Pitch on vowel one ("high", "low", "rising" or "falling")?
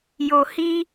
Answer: low